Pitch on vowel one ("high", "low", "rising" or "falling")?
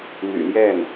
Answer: low